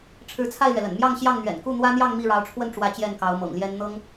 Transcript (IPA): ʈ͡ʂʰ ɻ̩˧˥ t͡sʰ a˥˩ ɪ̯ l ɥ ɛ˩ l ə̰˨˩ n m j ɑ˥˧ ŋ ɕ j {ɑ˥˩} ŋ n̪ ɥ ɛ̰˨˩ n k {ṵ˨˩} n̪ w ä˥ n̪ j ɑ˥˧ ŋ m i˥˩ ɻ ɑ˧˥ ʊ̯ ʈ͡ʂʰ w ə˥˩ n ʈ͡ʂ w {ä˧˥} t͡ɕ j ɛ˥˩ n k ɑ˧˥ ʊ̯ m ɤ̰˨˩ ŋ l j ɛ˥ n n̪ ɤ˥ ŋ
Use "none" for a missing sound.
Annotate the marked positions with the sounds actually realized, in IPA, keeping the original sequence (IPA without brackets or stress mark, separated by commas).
ɑ˥˩, u˥˩, ä˧˥